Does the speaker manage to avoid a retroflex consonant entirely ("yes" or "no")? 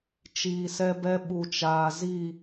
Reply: yes